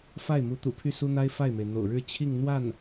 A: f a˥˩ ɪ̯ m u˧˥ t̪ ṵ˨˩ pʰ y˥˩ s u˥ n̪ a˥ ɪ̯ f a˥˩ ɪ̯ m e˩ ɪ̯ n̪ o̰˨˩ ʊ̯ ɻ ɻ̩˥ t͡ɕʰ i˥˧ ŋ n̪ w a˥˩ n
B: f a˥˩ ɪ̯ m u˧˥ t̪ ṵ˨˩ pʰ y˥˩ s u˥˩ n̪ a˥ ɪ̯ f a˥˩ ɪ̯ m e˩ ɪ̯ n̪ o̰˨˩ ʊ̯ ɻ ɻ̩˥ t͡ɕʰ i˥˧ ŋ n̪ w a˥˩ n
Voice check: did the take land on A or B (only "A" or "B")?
A